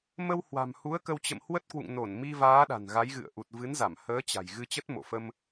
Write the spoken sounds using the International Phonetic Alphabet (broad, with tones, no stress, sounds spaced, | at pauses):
m ə˧ w h w a̤˨˩ m h u˨˦ ə̯ k ə˧ w t͡ɕ ə̰˧˨ m h w ə˦˥ t̚ k w ṵ˧˨ ŋ n o˧˩ n m i˧ v aː˨˦ ɗ a̤˨˩ n ɣ a˨˦ j ɣ ɨ̰˧˨ ə̯ ʔ u˨˩ t̚ v ɨ˨˦ n z a˧˩ m h əː˨˦ t͡ɕ a̤˨˩ j ɣ ɨ˧ t͡ɕ ə˦˥ t̚ m o̰˧˨ f ə˧ m